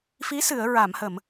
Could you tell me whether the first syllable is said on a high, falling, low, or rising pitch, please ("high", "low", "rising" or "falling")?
rising